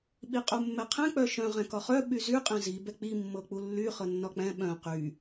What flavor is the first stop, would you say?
implosive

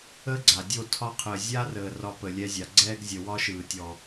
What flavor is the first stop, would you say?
click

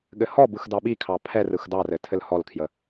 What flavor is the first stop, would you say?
implosive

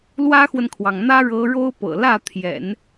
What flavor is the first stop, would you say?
aspirated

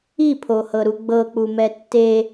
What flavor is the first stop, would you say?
aspirated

